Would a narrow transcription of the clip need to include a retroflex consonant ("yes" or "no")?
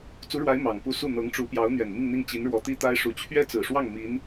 yes